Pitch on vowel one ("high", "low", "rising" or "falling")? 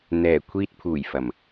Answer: low